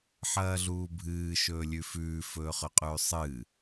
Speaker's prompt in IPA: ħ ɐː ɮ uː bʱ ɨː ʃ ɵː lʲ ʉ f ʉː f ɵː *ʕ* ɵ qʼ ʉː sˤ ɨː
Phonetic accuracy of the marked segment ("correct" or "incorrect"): incorrect